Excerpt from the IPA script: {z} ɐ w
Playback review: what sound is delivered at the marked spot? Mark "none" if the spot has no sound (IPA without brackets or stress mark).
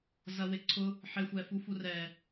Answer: z